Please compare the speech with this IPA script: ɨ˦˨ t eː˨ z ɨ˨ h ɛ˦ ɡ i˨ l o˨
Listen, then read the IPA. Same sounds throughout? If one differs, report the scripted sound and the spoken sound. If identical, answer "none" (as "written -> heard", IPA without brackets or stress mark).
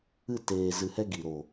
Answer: l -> ɾ